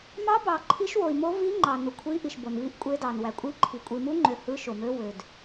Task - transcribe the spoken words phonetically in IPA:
mɑ˧˥bɑ˨ ǃʰi˧˥ʃ wo˨i̯mo˧˥ vi˧˥ ŋ͡ǃɑ˨ nu˨kʷʰi˧˥ʔi˨ʃ bo˨nvi˧˥ʔkʷʼe˧˥dɑ˨n wæ˨kʷʼi˧˥ǃʰi˨ kʷʼi˨mu˧˥ŋ͡ǃø˨ hɯ˧˥ʃo˨mø˧˥ wø˨d

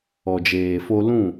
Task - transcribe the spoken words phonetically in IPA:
ɔ˨d͡ʒeː˨fo˧ lũ˦˨

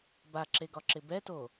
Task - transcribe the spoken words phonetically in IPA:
baǁeɡɒǁɪ bɛto

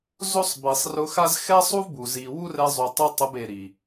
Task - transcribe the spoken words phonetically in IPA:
zo˦sˤbi˨sˤ rʊ˧xa˦z xɛ˦sˤu˦vbu˨ zi˨wu˦ rɛ˧zˤu˨tˤu˧ tˤʊ˧be˨ɾi˨

